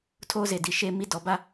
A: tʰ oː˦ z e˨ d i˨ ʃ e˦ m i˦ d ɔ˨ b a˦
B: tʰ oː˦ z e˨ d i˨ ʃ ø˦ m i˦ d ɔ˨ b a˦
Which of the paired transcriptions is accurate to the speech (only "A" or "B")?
A